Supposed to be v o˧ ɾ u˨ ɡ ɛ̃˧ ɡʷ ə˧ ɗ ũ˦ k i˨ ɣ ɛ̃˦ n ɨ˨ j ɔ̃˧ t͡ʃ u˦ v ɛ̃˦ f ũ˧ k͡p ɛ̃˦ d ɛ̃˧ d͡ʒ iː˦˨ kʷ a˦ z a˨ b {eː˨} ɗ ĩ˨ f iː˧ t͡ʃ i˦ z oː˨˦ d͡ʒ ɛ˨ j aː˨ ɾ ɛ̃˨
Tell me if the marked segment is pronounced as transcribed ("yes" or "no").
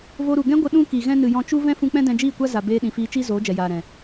no